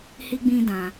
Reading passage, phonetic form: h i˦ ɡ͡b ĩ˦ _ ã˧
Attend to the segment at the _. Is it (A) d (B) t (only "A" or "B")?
A